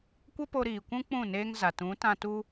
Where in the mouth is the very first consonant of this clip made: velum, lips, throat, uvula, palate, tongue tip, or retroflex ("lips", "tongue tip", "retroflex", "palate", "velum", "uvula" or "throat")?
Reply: velum